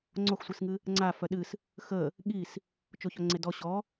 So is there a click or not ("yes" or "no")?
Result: yes